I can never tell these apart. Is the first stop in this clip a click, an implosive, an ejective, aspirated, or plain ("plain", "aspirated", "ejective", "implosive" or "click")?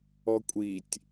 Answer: ejective